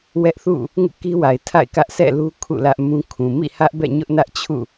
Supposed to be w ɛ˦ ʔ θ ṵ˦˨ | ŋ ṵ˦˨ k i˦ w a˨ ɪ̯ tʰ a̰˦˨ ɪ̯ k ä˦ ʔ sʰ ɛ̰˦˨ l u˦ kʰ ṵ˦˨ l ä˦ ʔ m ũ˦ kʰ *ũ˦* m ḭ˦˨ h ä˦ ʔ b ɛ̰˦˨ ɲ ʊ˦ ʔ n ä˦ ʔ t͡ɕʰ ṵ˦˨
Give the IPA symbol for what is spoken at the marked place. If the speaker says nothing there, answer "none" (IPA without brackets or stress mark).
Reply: ũ˨